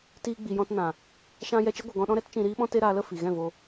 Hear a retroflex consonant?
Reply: no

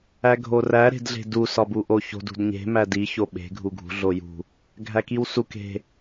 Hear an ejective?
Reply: no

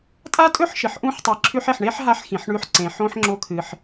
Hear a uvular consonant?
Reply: no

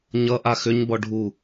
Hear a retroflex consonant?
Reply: yes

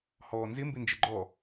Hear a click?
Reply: yes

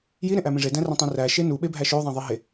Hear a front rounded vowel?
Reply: yes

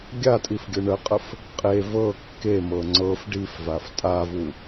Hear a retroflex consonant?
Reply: yes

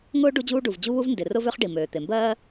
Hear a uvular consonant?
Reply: yes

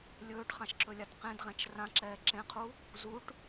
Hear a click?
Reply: yes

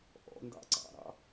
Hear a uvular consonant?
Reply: no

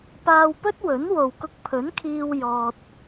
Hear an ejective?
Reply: no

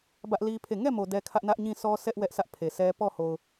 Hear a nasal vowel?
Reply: yes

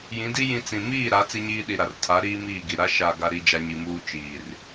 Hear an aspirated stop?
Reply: yes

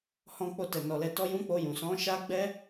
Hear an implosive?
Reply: no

